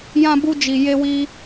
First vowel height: low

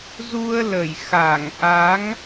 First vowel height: high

